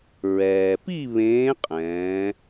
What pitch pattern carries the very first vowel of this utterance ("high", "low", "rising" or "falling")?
low